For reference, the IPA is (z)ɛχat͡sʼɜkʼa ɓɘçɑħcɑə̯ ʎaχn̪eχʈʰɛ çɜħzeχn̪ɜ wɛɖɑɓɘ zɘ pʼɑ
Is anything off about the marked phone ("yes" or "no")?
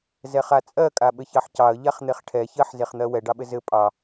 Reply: no